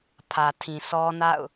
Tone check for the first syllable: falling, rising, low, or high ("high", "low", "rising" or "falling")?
low